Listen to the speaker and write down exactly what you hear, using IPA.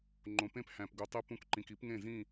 ŋ͡ǃ õ˨ p ẽ˦ p h æ̃˨ p ɡ u˨ tˤ i˧ p ũ˧ k ǃ ĩ˨ k i˨˦ p ŋ ẽ˦˨ z ĩ˦˨

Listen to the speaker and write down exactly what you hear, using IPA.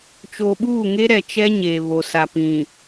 t͡ʃ o˨ ɓ uː˦˨ ŋ e˦ ɾ ɛ˨ t͡ʃ ɛ˦ ɲ eː˨ β o˨ s a˨ p ĩ˨

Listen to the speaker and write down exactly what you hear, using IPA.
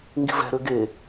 ŋ ɡ i̤ v ɛ̤ ɾ ø ɡ e

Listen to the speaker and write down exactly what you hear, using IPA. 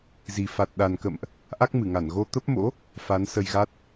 z i˨˩ f a˨˩ t̚ ɗ a˨˩ n k ə̰˧˨ m ʔ | ʔ a˦˥ k̚ m ɨ˧˩ ŋ a˧˩ n ɣ o˧ t̪ ə˦˥ p̚ m o̰˧˥ | f a˨˦ n s ə˧ j ɣ a˦˥ t̚

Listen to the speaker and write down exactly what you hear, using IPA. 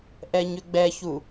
ʔ ɛ ɲ ʏ ɡ͡b ɛ ç u

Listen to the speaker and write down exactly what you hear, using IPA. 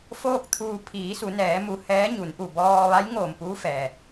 f oː˥˨ k̚ t̪ʰ uː˧ pʰ iː˩˧ s u˩˧ n ɛː˩˧ m u˧˩ h ɛː˧˥ ɲ u˩˧ n ʔ u˧˩ b ɔː˧ ʋ a˧˥ j ŋ oː˧˩ m p uː˧˥ f ɛː˩

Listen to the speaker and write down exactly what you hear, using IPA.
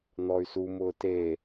n̪ ɔ y̯ s u m ʊː t e

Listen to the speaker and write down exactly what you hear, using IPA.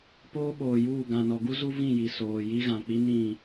p oː˦ ɓ oː˨ j uː˦˨ ɡ ã˨ n ɔ˨ ɡ u˦ z u˦ v ĩ˦˨ j i˨ s oː˨ j i˦ ɣ ã˨ k͡p i˦ n ĩ˦˨

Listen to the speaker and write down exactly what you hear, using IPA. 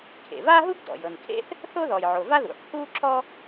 kʰ ḛ˩ v a˥ ɦ u˥ ɡ d ɔ̰˩ j ɤ˩ n kʰ ḛ˥ θ | θ o˥ ð ɔ˩ j ʕ o˩ v a˥ ð ṵ˩ ħ h u˥ ǁ ɔ˥

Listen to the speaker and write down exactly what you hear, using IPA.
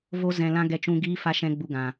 v o˧ z ɛ̃˨ l ã˦ ɡ ɛ˧ t͡ʃ ũ˧ ɡ iː˦ f a˦ ʃ ɛ̃˦ ɡ͡b u˧ ɡ ã˨

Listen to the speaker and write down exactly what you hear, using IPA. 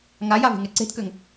ŋ a j a v e̤ ŋ ɛ ǀ e̤ t k ø ŋ

